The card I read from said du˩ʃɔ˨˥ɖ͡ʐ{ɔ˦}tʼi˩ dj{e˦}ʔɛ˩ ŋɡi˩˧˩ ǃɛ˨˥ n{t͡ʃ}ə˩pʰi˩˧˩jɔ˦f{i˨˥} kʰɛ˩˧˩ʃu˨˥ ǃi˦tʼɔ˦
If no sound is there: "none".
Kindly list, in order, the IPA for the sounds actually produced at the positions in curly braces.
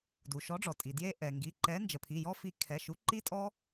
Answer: ɔ˩, e˦, d͡ʒ, i˨˥

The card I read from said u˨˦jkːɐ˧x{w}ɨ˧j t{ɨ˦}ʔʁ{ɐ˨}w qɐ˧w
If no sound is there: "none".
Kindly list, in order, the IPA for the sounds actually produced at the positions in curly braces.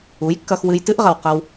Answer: w, ɨ˦, ɐ˨

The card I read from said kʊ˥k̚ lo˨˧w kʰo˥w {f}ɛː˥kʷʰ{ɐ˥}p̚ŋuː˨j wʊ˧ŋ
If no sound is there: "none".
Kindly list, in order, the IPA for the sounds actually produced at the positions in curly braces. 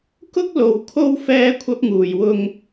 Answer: f, ɐ˥

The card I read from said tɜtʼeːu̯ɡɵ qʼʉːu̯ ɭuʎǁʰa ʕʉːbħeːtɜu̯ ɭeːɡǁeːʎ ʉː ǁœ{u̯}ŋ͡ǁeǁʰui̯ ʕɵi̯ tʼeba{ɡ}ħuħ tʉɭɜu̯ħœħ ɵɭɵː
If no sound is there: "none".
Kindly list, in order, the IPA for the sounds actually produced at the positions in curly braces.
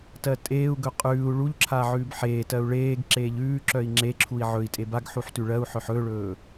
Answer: i̯, ɡ

